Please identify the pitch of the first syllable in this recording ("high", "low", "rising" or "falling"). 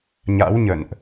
rising